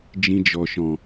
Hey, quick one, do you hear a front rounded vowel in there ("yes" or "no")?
no